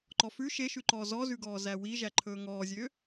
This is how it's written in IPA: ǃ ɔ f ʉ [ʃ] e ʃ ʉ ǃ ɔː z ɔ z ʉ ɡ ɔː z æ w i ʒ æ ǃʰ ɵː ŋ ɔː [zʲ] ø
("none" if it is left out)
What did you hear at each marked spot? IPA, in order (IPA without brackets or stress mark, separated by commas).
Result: ʃ, zʲ